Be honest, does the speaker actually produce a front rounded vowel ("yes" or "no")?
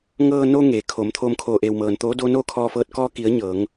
no